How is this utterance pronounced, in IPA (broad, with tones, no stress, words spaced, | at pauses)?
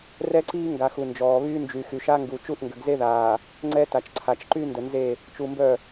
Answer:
rɛ˦ǀiː˦ŋɡa˨xu˨ nd͡ʒɔː˨βyː˦nd͡ʒy˨ xy˨ʃa˦ŋɡu˨ t͡ʃu˦˨ʔŋɡə˨ɡze˦ðaː˨ | ŋ͡ǀɛ˦ta˨t͡ʃǀʰa˨t͡ʃ ǃy˦ndə˨nze˦˨ | t͡ʃu˨mbœ˦˨